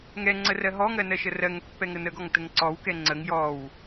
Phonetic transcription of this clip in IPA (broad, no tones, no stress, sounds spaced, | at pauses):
ŋ ɛ ŋ͡ǀ ə r ɜ ɦ ɔ ŋ ɜ n ɜ ʃ ə r ɜ ŋ pː ɛ ŋ ə n ə ɡ ɔ ŋ t ə ŋ ǀ ɔ w k ɛ ŋ͡ǀ ə ŋ j ɔ w